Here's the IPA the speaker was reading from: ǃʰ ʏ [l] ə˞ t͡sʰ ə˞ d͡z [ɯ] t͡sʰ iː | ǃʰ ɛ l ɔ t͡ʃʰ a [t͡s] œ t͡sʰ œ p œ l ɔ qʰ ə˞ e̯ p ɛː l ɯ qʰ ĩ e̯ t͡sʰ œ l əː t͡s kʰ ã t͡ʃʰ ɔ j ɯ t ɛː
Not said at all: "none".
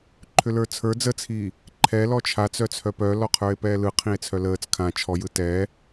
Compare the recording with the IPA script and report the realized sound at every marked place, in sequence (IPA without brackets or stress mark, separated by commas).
l, ə, t͡s